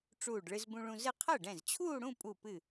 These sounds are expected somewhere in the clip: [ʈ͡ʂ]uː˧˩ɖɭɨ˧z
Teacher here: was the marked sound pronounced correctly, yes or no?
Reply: yes